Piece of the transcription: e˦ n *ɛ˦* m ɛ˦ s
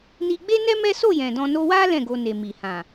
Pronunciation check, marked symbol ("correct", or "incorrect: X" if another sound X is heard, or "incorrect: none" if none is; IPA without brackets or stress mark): correct